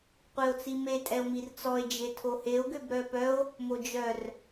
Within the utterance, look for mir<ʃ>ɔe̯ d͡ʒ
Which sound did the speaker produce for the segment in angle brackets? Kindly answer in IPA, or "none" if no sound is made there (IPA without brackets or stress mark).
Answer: t͡s